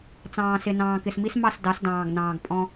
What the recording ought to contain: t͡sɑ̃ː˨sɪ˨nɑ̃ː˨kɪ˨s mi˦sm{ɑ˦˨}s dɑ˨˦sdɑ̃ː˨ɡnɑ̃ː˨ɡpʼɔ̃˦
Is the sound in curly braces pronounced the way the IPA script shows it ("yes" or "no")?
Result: yes